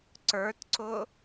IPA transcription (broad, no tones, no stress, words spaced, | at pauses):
ǀə˞tǀʊ